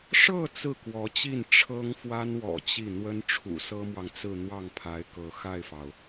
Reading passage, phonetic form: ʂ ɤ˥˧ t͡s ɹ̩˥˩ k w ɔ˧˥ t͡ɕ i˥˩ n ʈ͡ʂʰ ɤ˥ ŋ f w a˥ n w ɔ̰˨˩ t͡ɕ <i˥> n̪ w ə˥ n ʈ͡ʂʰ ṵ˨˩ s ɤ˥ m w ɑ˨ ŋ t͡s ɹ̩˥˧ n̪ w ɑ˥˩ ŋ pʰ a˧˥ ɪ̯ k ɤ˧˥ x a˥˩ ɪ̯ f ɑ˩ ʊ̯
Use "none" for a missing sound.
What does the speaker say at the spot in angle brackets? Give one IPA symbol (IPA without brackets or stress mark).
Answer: i˥˩